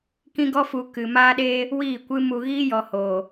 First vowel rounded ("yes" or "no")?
no